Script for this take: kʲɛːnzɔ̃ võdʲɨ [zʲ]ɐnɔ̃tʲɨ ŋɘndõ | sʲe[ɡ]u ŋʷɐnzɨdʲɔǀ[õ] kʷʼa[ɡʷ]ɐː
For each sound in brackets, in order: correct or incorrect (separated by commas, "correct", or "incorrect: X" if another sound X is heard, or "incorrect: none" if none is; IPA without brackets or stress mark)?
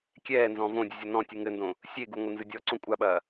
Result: correct, correct, correct, incorrect: ɓ